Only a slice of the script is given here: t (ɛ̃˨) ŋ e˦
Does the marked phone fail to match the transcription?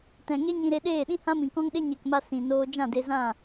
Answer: no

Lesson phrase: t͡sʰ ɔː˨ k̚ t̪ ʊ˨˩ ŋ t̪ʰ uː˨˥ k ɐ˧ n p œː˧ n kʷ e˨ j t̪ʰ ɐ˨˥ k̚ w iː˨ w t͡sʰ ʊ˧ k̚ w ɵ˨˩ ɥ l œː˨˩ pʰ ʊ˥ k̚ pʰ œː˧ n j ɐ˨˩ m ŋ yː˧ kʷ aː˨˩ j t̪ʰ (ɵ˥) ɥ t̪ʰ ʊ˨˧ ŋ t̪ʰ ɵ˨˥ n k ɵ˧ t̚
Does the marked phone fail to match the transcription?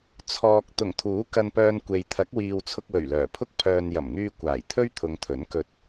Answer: no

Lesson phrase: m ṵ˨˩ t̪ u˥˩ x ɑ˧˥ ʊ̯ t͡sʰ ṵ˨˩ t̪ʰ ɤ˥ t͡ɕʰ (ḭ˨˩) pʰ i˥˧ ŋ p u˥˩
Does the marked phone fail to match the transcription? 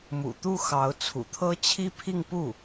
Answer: yes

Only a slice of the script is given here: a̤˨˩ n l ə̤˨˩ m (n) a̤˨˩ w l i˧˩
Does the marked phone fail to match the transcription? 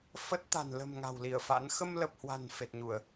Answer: yes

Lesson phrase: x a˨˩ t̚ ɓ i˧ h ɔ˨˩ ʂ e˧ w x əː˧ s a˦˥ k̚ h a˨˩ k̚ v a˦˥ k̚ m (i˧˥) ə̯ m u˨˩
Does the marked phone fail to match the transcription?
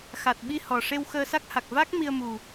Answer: yes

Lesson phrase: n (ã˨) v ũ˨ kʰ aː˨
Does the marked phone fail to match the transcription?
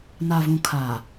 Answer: yes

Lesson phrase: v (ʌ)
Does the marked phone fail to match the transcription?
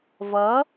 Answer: no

